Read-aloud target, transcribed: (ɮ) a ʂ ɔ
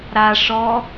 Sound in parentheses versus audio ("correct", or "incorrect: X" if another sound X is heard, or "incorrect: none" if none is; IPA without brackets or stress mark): incorrect: ɾ